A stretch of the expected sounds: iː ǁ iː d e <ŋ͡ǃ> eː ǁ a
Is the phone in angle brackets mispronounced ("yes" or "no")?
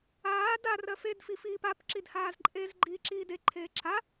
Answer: yes